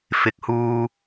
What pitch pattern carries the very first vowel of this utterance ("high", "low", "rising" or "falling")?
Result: rising